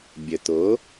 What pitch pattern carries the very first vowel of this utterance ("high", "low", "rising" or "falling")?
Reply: low